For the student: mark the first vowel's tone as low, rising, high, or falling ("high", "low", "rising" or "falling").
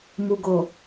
low